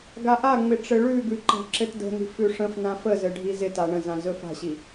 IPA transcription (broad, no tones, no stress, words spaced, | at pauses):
ɡaʔaŋ͡mɪ ʈ͡ʂɘɭʉɡʉ ǃa̤ǁɘtdə̤ni̤ fʉʂə̃fnã fəzɘ ɖʱizɪta ɳə̃zã zɵfa̤ɕi